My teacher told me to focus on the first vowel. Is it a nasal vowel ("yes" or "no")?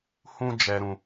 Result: yes